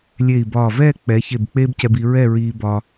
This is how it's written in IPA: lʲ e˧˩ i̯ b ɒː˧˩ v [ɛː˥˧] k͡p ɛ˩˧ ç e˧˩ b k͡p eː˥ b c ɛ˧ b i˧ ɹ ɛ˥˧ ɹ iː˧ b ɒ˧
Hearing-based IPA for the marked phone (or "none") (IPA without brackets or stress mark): ɛː˥˧